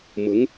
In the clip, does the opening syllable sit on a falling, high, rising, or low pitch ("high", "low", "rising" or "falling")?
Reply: rising